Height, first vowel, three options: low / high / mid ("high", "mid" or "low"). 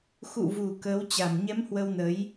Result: high